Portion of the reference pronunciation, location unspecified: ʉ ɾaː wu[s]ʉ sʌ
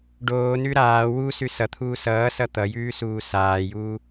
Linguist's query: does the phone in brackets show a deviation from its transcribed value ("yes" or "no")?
no